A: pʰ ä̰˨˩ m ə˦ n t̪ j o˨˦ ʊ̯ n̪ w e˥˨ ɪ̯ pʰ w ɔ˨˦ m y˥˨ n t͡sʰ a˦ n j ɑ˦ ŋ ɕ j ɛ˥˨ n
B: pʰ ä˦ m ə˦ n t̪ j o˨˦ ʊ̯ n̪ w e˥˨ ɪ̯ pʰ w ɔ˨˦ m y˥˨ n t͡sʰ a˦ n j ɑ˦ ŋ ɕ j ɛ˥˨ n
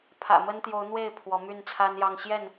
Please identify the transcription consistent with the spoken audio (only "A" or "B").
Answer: A